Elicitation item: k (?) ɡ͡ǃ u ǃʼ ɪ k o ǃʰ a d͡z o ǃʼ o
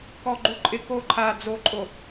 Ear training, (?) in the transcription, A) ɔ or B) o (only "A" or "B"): A